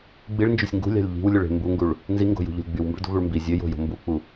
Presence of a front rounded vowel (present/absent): present